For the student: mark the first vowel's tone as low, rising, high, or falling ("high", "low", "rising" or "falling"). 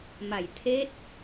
low